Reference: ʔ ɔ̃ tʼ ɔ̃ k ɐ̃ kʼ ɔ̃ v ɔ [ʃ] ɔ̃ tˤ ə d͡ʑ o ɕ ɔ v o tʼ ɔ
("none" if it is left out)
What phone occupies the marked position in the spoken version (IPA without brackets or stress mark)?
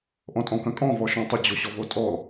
ʃ